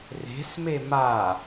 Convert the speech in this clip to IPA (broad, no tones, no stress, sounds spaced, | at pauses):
r e̤ s m e m a